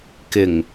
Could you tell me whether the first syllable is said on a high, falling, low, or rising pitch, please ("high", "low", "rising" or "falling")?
low